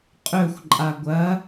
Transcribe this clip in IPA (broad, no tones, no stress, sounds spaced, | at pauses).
qʼ ɵ xʷ ǃʼ a ɡʷ ɐ